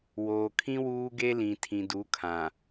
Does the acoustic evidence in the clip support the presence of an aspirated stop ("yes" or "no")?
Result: yes